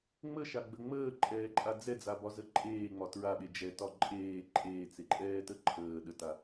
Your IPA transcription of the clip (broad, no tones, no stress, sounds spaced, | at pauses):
ŋ͡m ə ʃ a ɡ͡b ə ŋ͡m əː ǃʼ ɛː ǃʼ a d͡z ɛ d͡z a b ɒ z ə ǃʼ eː ŋ͡m ɒ t ɹ a ɓ e d͡ʒ ɛ t ɒ ǃʼ eː ǃʼ eː t͡s e ǃʼ ɛː t ə ǃʰ əː ɗ ə t a